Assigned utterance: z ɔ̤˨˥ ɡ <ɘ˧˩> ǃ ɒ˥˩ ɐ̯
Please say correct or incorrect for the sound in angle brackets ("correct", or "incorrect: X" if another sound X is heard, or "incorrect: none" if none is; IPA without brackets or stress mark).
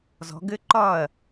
incorrect: ɘ˦˥